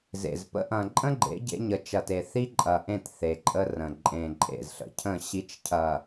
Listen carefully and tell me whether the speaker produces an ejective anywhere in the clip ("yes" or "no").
yes